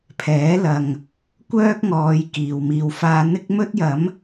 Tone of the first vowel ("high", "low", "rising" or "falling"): rising